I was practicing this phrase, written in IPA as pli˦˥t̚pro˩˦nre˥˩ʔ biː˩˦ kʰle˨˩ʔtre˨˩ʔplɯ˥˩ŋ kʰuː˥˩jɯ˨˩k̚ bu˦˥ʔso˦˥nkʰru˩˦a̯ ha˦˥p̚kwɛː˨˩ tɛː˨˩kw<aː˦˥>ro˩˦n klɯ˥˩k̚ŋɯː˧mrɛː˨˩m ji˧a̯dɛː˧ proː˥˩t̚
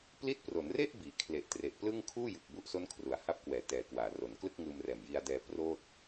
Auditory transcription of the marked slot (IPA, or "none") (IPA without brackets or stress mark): aː˩˦